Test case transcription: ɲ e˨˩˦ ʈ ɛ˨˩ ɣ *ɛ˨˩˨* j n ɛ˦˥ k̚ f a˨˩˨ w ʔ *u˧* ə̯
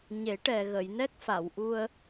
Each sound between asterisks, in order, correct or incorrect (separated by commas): incorrect, correct